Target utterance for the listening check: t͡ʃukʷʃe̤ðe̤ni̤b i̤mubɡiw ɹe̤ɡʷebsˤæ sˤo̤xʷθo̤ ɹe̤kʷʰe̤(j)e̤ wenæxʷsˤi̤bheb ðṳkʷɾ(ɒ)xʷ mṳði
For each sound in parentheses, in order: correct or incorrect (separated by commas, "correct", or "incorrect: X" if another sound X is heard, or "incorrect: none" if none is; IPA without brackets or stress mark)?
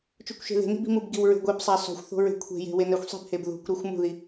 correct, correct